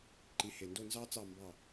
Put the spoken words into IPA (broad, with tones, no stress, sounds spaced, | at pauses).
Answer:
ǃ i˩˥ h e˩ n d o˥˩ n z ɑ˥ t͡s ɑ˥˩ m b ɑ˥˩